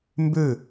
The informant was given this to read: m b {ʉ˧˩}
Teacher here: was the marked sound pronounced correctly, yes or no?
yes